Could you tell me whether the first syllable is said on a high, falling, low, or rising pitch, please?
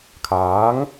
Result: rising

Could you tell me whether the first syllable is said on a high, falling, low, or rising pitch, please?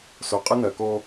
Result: low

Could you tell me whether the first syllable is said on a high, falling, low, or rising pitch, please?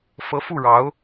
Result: rising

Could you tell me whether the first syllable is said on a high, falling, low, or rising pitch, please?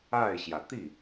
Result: falling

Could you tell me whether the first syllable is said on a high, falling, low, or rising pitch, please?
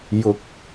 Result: rising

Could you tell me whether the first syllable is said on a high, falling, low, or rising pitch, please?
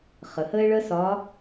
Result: low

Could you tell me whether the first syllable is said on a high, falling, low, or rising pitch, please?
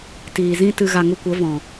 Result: low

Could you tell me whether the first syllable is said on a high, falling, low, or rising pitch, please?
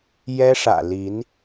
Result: high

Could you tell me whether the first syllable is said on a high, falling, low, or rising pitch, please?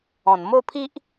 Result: low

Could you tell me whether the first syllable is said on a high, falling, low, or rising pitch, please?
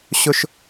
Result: high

